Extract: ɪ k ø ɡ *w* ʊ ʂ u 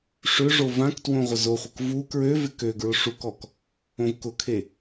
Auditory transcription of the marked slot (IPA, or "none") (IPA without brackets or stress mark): ɹ